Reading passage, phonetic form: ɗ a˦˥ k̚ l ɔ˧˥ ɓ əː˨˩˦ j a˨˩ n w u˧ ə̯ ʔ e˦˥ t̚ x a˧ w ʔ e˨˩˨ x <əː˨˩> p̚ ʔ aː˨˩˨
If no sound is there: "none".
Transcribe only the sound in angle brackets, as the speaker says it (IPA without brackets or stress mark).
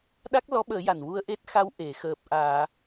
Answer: əː˨˩